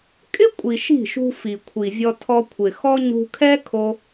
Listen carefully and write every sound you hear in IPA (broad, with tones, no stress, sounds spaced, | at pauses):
kʼ ɪ˦ kʷʼ i˨ ʃ i̤˦˨ ʃ ṳ˧ f i˨ kʷʰ i˨ vʲ ɔ˧ tʰ ɔ˧ kʷʰ ɪ˨ x ɔ˦ ɲ ṳ˧ kʰ ɛ˦ kʰ o˧